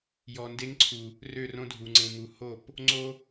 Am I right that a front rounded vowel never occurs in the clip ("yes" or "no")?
no